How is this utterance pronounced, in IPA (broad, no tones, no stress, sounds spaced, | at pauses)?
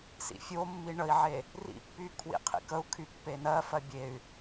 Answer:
s ḭ fʲ o mː i ɳ ə i̯ ʕ e | r ḭ pː y kʰ w ḭ qʰ ḭ k ə u̯ kʰ y pː e n ɜ f ɜ bʲ e y̯